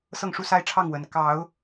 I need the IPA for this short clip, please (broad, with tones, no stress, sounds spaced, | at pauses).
s ɤ˥˨ ŋ ʂ u˦ s a˦ ɪ̯ ʈ͡ʂʰ ɑ˥˨ ŋ w ə˨˦ n k ɑ˨˦ ʊ̯